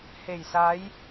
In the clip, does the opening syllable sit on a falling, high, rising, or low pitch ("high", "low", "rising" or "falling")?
low